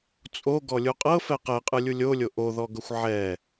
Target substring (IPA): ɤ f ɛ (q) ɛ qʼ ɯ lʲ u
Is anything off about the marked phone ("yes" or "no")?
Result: no